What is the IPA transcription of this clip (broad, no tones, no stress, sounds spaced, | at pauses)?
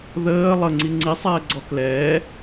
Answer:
ð əː lˠ ə ŋ͡ǀ i ŋ͡ǀ i sˤ ɛː ɡ͡ǀ ɔ k l ɛː